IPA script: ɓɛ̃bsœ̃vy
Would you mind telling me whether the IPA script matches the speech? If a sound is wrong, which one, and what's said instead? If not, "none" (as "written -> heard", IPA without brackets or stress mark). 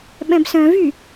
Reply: none